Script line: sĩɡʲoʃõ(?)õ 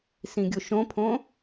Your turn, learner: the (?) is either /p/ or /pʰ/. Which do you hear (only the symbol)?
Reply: pʰ